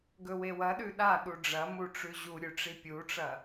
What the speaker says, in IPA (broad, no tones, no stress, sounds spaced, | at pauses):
ɡ ɵ w e w ɐ ɗ ʉ ɗ a ɗ u ɖ͡ʐ ɐ m u ʈ͡ʂ ʉ ʑ u ɾʲ ʉ ʈ͡ʂ i pʲ u ʈ͡ʂ ɐ